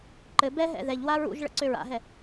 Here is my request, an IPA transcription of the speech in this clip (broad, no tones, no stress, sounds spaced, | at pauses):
ǃ ɘ b ɛ ɦ ɛ̰ ð ɛ ʎ w a ɹ ṵ ʒ ɭ ə̰ ǀ ø ɹ a̰ ɦ ɛ